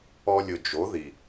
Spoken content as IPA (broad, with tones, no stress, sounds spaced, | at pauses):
ɔ˧ lʲ ʊ˨ d͡ʒ o˨˦ ð i˨